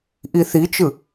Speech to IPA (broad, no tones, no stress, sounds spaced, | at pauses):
ʔ i θ i t͡ʃ ɯ